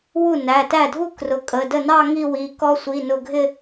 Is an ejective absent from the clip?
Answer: no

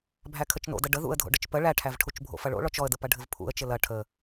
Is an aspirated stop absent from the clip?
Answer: no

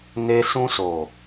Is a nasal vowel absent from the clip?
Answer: no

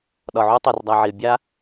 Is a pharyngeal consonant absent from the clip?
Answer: no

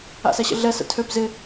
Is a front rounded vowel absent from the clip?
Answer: no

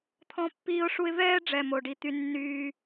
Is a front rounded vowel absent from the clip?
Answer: no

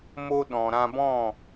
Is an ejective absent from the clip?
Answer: yes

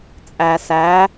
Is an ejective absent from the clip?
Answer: no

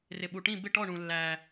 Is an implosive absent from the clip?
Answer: no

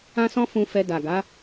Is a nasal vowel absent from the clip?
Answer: no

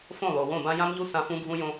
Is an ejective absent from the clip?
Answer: yes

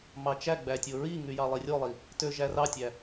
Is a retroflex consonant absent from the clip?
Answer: yes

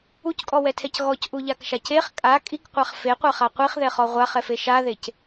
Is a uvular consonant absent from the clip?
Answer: no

